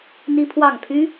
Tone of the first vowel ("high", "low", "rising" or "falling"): high